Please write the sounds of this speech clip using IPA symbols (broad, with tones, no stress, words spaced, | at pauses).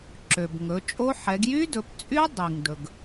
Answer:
ǁø˩b ŋɵ˩˧t͡ʃʼo˦˥ ħɛ˩˧ɡjy˦˥dɵ˩˧pt͡sʼy˦˥ dˤi˩ŋdɵ˩ɡ